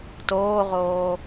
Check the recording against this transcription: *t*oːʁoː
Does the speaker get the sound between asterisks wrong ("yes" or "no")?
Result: no